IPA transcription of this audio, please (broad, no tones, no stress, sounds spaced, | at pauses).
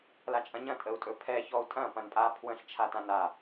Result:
l a t͡ʃʼ ɐ̃ ɲ ɐ̃ tʼ ə u̯ tʼ ɵ pʰ ɛ ç ɔ u̯ tʼ ɐ̃ p ɐ̃ n pʼ a pʰ w ə̃ ɬ t͡ʃʰ a t ã n a